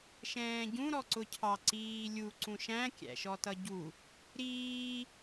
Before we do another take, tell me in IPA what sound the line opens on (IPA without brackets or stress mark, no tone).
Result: ʃ